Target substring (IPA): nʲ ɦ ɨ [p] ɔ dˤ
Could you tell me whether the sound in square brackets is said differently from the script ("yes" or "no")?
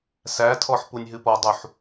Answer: no